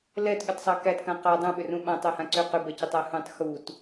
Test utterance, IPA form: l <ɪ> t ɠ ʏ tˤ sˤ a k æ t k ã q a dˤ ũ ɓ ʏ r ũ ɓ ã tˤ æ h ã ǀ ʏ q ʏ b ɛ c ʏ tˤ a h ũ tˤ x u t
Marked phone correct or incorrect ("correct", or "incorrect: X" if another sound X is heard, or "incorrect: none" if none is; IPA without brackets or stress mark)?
incorrect: ɛ